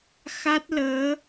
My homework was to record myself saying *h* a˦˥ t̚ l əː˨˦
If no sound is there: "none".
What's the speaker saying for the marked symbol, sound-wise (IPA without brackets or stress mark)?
x